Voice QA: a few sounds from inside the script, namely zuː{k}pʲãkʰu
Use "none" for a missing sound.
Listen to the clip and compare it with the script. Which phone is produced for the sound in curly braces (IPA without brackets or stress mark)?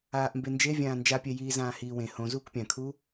k